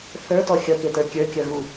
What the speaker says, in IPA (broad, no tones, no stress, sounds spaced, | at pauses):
θ ə˞ t ɔ xʲ ʌ k e t ə˞ kʲ ə˞ kʲ ʌ ɣ u